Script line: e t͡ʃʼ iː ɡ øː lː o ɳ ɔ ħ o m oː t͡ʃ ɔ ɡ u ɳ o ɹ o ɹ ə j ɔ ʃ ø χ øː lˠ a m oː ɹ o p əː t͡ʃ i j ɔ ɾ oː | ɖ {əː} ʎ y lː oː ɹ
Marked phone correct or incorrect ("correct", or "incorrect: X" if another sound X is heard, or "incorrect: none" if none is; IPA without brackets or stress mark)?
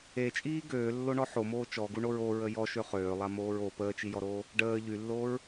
correct